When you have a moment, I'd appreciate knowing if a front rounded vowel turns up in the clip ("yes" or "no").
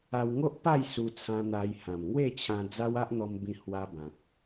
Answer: no